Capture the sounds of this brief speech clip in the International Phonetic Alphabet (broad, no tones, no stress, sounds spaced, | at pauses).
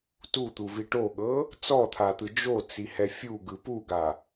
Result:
t u t̪ u v i ʈ o ɠ ɤ | t͡s ɔ t̪ʰ a t̪ ɯ d͡ʒ o t͡s i h ɛ fʲ u ɡ ɯ p u ɡ a